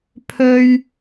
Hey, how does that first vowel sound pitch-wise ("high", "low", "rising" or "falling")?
high